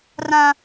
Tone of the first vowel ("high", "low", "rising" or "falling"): high